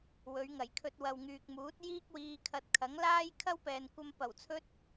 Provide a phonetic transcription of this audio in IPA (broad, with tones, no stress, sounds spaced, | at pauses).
w ɵ˨˧ ɥ ŋ ɐ˨˩ j kʰ ɵ˧ t̚ w ɐ˨ w ŋ yː˨ k̚ m uː˨˥ t̚ j iː˥ k̚ w iː˧ kʰ ɐ˧ t̚ kʰ ɐ˨˥ ŋ l aː˥ j kʰ ɐ˥ w p ɛː˨ n kʷ ɐ˧ m p ɐ˨˩ w t͡sʰ ɵ˥ t̚